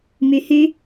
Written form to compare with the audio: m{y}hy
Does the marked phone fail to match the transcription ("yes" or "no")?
no